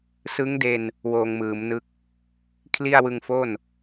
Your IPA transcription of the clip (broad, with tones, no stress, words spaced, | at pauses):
sɯ˦˥ŋde˧n | woː˧ŋmɯː˩˦mnɯ˦˥k̚ | kʰli˥˩a̯wɯ˧ŋfo˥˩n